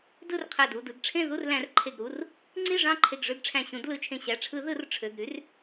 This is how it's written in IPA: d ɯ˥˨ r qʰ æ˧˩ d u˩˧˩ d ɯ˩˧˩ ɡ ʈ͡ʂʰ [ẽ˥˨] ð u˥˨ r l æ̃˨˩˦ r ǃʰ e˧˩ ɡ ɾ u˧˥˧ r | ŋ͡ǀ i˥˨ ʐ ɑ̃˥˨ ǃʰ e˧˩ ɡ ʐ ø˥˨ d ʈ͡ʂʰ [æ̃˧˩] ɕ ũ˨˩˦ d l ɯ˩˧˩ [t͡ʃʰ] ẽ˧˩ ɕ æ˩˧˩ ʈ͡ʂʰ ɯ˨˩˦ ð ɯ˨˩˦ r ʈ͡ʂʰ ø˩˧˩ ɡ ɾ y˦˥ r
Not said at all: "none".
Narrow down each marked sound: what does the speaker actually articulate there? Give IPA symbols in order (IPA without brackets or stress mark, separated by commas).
ẽ˥˨, æ̃˧˩, t͡ʃʰ